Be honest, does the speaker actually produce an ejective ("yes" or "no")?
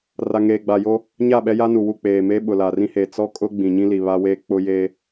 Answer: yes